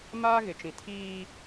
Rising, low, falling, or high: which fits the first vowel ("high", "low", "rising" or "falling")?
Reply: high